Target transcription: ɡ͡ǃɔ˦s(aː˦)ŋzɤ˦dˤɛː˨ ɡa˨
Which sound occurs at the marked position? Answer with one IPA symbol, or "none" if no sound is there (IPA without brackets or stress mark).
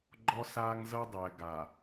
aː˦